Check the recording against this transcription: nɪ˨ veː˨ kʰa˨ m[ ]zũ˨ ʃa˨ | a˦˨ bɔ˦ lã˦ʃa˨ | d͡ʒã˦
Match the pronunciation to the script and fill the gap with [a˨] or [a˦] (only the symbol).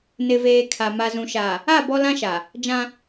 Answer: a˨